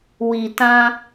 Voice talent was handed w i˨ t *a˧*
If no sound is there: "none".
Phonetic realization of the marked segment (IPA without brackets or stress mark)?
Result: ã˧